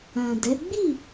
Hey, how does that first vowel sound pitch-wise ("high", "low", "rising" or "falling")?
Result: low